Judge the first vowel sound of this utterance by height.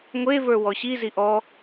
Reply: mid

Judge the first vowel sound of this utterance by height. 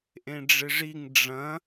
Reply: mid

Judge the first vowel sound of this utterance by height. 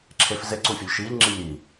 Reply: mid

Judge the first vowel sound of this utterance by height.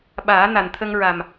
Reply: low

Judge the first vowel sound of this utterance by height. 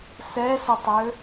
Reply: mid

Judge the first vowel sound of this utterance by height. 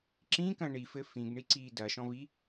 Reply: high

